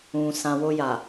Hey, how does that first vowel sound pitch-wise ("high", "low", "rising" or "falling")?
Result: low